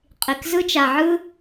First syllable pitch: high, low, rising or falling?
low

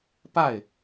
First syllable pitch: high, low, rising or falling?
falling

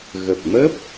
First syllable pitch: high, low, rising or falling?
low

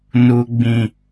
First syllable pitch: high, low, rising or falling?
low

